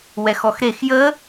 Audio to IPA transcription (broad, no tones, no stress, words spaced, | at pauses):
wɛxɔxɾex jə